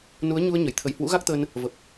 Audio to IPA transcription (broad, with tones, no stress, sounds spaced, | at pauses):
n u˨˦ ə̯ ɲ u˧ ə̯ ɲ ə˧˩ j t̪ʰ ə˧˩ j h w ṵ˧˥ ɣ a˦˥ k̚ t̪ ə˧ n | v ə˨˩ p̚